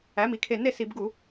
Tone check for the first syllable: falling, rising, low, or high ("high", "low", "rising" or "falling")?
rising